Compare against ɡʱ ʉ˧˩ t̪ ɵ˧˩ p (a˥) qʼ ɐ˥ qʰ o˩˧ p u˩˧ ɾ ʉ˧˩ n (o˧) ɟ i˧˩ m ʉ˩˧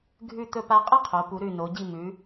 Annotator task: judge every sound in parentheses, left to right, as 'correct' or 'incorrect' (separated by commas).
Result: incorrect, incorrect